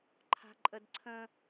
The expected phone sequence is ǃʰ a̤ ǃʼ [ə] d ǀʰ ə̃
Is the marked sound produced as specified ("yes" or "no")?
yes